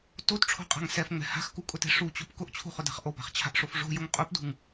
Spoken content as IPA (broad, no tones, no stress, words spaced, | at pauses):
totʈ͡ʂʰo̤qʼa̤ŋ sɛfŋ͡mɛ̤ ha̤xkukʼʊtɛ̤ ʂut͡ɕop kʊʔt͡ɕʰṳχʊda̤χ ʔopa̤χt͡ɕʰa̤ʔʂof ʐo̤jʊŋ qʼupdṳŋ